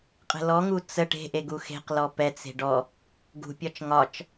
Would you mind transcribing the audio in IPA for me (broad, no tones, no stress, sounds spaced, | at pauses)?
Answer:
qʼ ə̤ l ɔ ŋ u t͡s ə ʈ e̤ ʔ e ɡ u x e̤ q l ɔ p ɛ t͡s e̤ ɖ ɔ | ɡ ṳ pʲ ɒ t͡ʃ ŋ ɒ t͡ʃ